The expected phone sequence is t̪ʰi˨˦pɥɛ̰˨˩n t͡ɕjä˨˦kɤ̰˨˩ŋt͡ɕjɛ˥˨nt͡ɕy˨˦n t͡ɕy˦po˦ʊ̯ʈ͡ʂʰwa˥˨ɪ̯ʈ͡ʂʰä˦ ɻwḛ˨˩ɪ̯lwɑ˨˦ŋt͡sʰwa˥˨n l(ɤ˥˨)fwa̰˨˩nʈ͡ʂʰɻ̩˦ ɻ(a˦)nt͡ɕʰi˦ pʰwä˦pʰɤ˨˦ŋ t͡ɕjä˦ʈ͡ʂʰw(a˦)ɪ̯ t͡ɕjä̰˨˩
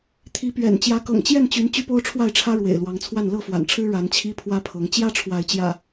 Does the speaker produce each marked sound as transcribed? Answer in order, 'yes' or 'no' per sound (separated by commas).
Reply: yes, no, no